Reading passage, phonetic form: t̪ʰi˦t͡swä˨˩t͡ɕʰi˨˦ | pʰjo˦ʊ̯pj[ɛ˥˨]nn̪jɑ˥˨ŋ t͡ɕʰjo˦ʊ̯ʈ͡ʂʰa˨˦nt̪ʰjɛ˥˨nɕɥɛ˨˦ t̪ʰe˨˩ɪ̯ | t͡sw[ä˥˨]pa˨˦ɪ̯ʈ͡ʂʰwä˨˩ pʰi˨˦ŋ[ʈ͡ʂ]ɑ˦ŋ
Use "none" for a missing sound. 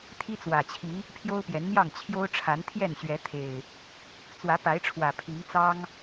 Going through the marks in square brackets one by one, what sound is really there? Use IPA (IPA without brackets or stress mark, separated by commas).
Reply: ɛ˨˦, ä˨˦, t͡s